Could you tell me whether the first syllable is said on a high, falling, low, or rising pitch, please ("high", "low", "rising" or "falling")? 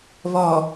low